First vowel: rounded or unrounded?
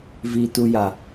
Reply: unrounded